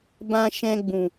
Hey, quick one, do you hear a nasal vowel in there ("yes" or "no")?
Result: yes